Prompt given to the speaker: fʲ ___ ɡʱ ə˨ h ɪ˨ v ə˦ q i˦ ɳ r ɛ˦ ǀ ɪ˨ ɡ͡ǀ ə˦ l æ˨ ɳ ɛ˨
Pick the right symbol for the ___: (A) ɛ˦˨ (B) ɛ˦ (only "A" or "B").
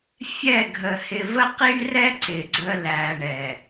A